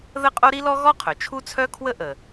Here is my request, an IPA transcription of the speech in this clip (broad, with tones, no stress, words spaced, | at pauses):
ðə˥qʼo˥ ɾi˥lɔ˥ ɣɔ˥qʰœ˩ t͡ʃʰu˥t͡sʰœ˥kʰwə˥ ʔə˩